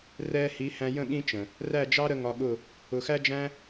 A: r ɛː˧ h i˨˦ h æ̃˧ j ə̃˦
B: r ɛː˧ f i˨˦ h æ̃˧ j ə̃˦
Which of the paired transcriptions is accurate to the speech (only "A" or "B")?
A